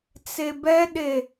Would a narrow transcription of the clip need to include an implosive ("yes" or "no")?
yes